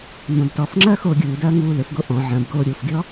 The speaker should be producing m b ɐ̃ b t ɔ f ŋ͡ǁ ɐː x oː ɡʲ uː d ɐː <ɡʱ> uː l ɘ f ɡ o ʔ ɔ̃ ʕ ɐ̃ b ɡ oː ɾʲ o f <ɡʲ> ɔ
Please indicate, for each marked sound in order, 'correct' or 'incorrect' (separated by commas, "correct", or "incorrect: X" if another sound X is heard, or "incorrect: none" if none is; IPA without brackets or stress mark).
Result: incorrect: ŋ, correct